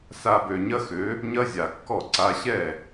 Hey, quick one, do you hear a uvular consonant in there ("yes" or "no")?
no